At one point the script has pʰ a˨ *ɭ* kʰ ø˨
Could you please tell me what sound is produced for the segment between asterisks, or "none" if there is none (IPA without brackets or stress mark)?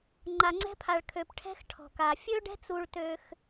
ɭ